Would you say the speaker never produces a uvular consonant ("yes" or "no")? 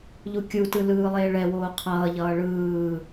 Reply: no